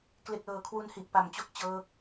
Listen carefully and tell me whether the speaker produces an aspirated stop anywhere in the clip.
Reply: yes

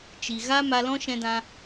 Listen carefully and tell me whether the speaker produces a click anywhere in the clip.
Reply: no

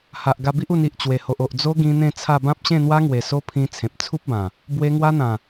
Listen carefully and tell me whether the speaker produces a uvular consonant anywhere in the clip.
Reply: no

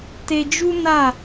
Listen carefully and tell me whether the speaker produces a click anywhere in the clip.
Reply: no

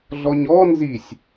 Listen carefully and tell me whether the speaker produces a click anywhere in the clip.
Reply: no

